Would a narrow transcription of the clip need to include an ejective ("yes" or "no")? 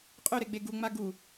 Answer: yes